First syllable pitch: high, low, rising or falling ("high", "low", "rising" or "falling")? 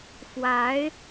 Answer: rising